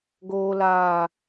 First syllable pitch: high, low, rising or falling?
low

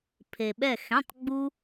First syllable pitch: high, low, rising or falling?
low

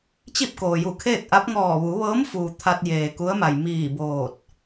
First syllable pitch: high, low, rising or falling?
falling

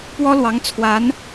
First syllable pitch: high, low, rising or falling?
high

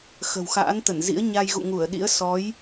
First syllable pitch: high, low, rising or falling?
low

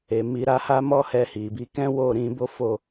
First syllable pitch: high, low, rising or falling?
low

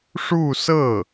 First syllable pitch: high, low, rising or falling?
falling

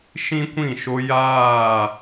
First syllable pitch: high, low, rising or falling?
high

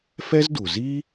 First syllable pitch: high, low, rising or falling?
high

